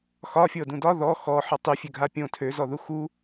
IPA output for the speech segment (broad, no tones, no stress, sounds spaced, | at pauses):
x ɒ fʲ ɤ d ũ d ɒ ð ɔ x ɔ ħ ɒ tˤ y fʲ ø ɡʱ a pʲ õ tʰ ø z ɔ ð u x u